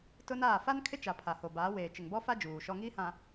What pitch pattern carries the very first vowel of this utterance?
high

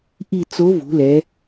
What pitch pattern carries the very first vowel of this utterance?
falling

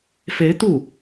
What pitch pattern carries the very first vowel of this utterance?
rising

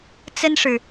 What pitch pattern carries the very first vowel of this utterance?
high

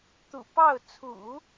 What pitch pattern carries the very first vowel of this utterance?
low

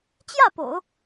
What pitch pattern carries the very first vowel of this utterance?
falling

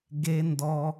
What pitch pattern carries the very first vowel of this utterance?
high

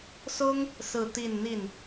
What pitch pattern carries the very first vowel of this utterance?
high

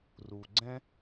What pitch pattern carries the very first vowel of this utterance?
low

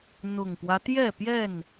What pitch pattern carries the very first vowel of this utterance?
low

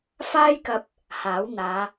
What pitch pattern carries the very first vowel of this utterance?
high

